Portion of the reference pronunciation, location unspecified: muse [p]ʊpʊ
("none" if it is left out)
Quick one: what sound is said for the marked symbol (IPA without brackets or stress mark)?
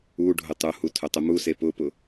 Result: p